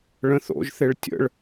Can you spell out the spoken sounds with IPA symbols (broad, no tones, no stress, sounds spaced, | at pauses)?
ɭ ə̃ θ o̰ ʒ θ e ɭ tʲ ə̰ ɭ